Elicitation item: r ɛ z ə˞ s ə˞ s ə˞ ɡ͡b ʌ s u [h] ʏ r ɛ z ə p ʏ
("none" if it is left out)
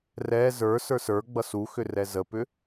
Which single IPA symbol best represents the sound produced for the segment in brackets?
x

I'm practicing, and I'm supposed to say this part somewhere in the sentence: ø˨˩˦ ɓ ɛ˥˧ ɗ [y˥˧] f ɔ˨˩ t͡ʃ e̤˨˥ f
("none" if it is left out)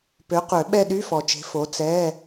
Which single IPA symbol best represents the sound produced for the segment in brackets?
y˧˥˧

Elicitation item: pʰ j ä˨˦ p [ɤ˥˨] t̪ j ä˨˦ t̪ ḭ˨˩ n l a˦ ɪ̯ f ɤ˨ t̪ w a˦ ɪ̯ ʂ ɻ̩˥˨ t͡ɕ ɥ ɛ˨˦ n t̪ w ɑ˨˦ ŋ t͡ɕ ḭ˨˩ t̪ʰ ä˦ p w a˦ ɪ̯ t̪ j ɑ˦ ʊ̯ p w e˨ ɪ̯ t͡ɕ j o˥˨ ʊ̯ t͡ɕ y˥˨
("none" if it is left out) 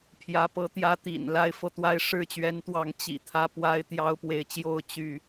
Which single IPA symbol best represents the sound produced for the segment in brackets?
ɤ˨˦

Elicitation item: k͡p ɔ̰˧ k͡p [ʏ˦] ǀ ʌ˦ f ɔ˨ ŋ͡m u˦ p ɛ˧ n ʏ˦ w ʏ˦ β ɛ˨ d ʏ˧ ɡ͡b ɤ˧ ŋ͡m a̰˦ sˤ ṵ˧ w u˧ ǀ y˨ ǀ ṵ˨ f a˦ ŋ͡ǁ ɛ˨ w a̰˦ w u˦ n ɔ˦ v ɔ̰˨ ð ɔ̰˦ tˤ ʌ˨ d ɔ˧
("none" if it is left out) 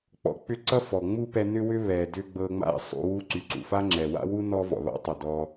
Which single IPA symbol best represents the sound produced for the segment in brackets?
ʏ˦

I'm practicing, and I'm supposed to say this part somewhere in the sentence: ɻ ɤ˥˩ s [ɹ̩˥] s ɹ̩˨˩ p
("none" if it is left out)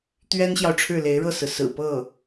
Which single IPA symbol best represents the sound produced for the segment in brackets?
ɹ̩˩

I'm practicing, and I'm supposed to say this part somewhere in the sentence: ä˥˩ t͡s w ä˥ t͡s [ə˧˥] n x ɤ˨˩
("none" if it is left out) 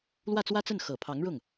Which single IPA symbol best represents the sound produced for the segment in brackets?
ə˥˩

